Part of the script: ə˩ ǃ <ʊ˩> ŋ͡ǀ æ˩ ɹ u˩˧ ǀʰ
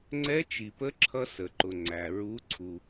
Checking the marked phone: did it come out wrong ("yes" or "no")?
no